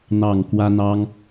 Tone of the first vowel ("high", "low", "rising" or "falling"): low